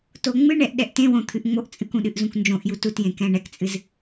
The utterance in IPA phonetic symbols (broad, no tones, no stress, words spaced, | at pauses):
toŋ͡mɨɳɛʔ ɗɛʔtẽwõ t̪ʰɨʔŋ͡moʔt͡sʼɨkũ ɗɨʔzũknd͡ʒõʔju tutjẽ kɛ̃ɳɛkt͡sʼɨz